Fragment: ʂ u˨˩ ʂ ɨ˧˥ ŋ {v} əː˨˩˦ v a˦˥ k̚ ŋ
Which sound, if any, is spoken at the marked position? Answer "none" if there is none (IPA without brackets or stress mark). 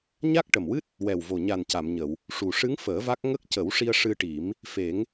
f